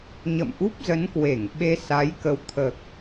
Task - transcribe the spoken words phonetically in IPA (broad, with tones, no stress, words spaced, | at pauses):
ɲə̰˧˨mʔu˦˥p̚zə˨˦nkwe˧˩ŋ ɓe˧sa˨˦j kə˨˦wt̪ʰəː˨˩k̚